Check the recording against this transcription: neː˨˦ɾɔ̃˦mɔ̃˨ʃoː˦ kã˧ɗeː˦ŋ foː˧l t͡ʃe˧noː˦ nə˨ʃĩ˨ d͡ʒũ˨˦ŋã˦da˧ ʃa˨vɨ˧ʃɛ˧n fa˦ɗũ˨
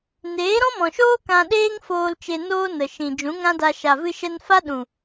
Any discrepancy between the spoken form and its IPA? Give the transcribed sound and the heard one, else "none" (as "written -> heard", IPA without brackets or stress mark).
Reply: none